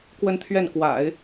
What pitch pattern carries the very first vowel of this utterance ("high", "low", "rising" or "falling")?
falling